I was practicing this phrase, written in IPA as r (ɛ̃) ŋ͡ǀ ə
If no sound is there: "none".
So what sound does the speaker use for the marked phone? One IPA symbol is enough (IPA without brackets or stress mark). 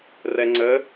ɛ